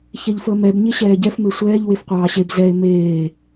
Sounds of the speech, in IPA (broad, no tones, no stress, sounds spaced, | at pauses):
ç ɛ ʎ f əː m ɛ b ɲ e ɕ ɛː ɟ ɛ f m e sʷ ɛː ʎ w e f qʷ ɑː ɕ e b z ɛ e̯ m eː